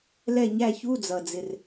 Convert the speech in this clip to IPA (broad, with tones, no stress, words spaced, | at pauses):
lɛ˥˨ɲæ˥˨ çu˧˥˧d͡zʌ˩d͡zɪ˩r